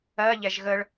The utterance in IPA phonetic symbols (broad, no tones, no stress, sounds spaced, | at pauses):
ɜ ʎ ɛ ʒ ɣ ə ɭ